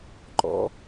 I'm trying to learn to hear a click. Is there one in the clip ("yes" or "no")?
yes